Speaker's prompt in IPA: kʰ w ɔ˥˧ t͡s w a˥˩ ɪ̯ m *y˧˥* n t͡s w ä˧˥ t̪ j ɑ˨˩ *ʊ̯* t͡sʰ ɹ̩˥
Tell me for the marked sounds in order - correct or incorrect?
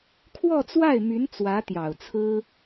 correct, correct

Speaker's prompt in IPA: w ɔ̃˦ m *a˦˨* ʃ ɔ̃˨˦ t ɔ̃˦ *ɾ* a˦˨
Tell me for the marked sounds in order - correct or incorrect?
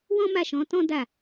correct, incorrect

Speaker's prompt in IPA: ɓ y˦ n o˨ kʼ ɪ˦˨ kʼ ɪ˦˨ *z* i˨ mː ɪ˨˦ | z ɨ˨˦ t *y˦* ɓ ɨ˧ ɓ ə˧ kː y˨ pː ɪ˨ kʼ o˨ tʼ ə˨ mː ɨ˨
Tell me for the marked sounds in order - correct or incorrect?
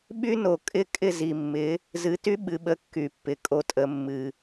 correct, correct

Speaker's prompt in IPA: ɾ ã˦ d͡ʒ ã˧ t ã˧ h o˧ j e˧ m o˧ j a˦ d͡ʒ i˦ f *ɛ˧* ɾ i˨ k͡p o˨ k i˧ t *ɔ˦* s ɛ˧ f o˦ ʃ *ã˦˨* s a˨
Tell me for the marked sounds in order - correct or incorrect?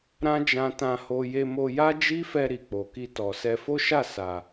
correct, incorrect, incorrect

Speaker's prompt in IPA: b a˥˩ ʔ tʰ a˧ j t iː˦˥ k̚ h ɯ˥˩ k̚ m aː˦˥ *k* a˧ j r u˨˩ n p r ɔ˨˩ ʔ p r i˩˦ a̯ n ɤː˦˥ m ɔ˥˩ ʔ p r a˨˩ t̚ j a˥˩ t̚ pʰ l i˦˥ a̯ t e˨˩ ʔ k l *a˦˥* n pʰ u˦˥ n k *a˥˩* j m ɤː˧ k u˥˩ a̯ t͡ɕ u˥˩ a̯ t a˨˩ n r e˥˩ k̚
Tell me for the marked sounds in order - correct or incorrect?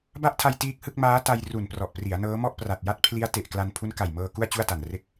incorrect, incorrect, incorrect

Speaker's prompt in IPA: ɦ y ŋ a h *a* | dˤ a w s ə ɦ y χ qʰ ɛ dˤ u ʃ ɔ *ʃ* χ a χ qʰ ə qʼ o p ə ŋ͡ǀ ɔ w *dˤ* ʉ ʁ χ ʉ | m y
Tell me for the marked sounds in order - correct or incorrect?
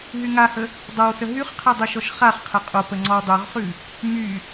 incorrect, correct, correct

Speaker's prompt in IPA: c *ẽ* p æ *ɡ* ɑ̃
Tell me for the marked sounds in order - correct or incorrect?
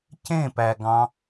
correct, correct

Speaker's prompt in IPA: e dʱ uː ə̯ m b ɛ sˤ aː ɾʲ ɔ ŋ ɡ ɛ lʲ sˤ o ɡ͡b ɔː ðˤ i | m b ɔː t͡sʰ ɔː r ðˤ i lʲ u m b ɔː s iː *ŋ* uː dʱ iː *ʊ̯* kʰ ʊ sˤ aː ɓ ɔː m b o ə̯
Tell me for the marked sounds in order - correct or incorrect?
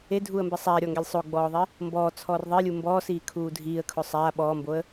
incorrect, incorrect

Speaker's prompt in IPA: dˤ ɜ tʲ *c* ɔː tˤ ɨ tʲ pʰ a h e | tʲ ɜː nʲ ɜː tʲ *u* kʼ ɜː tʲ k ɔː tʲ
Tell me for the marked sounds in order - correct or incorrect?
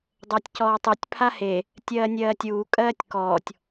correct, incorrect

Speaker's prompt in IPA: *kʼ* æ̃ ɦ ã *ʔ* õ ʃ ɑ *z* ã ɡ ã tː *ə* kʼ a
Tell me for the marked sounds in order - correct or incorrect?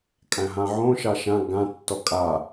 correct, incorrect, incorrect, incorrect

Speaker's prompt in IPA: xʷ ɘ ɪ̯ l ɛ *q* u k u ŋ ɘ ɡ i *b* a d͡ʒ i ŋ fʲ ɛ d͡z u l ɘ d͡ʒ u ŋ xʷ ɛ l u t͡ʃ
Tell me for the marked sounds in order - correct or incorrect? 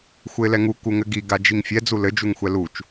incorrect, incorrect

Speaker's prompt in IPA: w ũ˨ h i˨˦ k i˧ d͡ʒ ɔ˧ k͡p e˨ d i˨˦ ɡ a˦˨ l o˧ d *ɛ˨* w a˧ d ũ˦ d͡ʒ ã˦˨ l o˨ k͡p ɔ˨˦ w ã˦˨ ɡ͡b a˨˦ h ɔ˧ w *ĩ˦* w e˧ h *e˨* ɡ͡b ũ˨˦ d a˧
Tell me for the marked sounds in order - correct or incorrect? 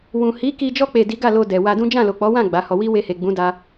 correct, incorrect, correct

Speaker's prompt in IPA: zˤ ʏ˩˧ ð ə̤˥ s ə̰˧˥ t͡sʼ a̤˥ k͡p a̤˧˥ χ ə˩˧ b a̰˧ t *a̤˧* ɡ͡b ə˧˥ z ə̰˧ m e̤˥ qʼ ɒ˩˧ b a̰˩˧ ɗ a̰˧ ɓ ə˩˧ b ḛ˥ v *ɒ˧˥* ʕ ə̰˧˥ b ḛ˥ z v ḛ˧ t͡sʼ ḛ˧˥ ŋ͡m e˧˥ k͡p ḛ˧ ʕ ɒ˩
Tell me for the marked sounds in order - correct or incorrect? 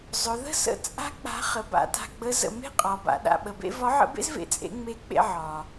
correct, correct

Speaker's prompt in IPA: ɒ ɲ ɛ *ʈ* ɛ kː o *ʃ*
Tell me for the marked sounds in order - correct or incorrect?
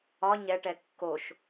correct, correct

